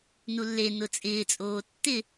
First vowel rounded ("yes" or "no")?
yes